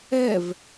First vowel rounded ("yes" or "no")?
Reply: no